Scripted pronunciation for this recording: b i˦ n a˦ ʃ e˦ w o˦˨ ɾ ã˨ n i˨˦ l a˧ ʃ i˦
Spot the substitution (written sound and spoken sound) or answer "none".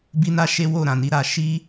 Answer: l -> ɾ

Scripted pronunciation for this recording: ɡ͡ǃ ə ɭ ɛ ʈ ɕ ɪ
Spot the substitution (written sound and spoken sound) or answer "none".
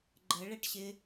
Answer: none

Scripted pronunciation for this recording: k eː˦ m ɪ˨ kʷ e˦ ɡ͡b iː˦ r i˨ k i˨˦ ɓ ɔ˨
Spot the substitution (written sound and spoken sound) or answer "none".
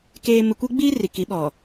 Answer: none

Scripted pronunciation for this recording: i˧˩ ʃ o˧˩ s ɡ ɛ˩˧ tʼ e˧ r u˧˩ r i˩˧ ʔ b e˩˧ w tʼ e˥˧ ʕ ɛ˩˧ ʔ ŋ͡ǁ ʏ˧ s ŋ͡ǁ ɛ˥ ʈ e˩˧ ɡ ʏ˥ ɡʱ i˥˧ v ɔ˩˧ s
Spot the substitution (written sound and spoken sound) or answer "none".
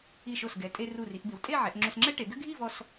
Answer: ɔ˩˧ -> ɔ˧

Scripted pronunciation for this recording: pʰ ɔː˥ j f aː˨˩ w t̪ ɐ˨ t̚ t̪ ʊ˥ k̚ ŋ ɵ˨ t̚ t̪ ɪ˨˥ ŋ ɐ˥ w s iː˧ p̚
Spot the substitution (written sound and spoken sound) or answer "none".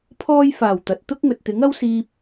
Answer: none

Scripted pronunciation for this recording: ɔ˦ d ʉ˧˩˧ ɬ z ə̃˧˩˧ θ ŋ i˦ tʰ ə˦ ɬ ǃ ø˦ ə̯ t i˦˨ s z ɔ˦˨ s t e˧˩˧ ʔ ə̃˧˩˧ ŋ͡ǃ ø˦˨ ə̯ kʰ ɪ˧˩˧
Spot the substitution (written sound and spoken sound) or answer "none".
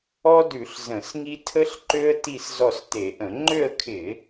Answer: θ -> s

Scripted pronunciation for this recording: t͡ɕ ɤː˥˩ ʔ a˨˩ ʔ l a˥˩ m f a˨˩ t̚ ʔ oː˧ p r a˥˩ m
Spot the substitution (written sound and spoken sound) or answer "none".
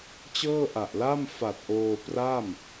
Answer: none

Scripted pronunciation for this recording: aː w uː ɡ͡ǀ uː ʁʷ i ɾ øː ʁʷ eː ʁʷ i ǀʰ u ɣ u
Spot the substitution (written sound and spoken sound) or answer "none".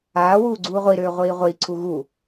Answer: eː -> iː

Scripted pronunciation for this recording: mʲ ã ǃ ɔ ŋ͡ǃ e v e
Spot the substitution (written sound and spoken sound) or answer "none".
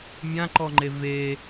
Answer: none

